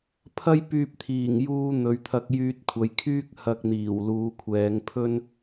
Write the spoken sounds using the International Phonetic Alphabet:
pʰ ɐ˥ j p yː˧ p̚ t̪ʰ iː˨˩ ŋ j uː˧ n̪ ɵ˨˧ ɥ t̪ʰ ɐ˧ k̚ j yː˧ t̚ kʷʰ ɐ˨˧ j kʰ yː˥ k̚ h ɐ˧ k̚ n̪ iː˨˩ w l uː˨˧ kʷʰ ɛː˨˧ ŋ pʰ ɵ˥ n

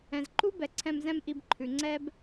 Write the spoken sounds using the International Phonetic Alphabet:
ɛ̃˨ z ǃ u˦ b ɛ˨ ǀʰ ɛ̃˧ m z ɛ̃˦ m ʔ i˧ b ǃʰ ʉ˨ ŋ͡ǀ ɛ˦ b

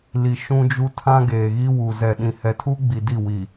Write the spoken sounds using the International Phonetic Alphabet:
l i˨ ʃ ũ˦ d͡ʒ u˦ tʰ ã˦ ɡ eː˨ ɣ i˦ w u˨ z ɛ˨ ɗ ĩ˨ h ɛ˨ tʰ u˦ ɡ͡b i˨ d i˦˨ w i˨

